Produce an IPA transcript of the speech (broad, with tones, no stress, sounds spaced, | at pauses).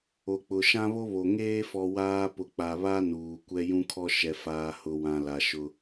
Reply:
o˨ k͡p ʊ˨ ʃ ã˦ β o˦ β o˨ ŋ eː˦ f ɔ˨ w aː˦ p ʊ˨ k͡p a˨ β a˦ n uː˨ kʷ ɛ˦ j ũ˦ kʰ ɔ˦ ʃ ɛ˨ f aː˨ h ʊ˨ w ã˨ l a˨ ʃ ʊ˦